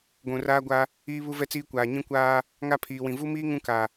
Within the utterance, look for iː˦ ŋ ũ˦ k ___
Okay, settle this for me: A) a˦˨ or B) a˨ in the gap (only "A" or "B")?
B